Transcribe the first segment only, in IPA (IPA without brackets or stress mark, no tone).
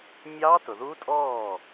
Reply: mʲ